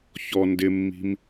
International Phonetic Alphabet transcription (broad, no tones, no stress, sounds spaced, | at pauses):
ç ɔ n d ɪ mː i̤ m